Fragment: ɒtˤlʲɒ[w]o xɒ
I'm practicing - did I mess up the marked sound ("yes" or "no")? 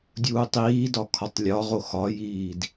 yes